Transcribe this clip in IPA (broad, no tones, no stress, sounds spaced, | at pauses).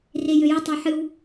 r e j ø j ə tˤ ɑ ħ ɨ w